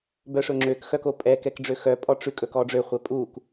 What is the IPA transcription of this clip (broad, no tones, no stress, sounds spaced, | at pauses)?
b œ ʂ ɵ ŋ͡ǁ ø k x œ k o pʼ ɛ k ɛ k ɖ͡ʐ ø x œ pʼ ɔ ʈ͡ʂ ʉ kʼ ɵ k ɔ ɖ͡ʐ ø χʷ ɛ pʼ u k